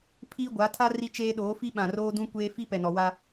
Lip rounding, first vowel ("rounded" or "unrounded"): unrounded